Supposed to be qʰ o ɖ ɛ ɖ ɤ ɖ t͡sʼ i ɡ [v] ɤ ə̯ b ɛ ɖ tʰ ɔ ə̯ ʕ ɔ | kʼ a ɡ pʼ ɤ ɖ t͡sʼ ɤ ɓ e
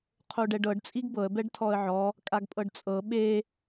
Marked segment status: incorrect: b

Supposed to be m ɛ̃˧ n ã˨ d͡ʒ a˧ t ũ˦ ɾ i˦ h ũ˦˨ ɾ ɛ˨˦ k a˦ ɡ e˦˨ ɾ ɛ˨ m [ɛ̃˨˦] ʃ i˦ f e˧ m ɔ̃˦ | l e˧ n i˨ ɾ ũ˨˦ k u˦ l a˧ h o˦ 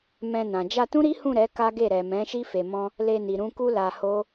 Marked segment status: correct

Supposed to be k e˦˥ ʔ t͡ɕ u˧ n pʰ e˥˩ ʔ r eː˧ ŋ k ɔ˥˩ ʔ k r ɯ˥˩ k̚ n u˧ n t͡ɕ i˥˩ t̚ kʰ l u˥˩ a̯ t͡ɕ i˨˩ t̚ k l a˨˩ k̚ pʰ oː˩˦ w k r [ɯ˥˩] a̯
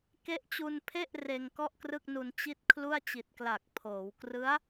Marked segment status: incorrect: ɯ˦˥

